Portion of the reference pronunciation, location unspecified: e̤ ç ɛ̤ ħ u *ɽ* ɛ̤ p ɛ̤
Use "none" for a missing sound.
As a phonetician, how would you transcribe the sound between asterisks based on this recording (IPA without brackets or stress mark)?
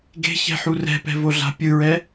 r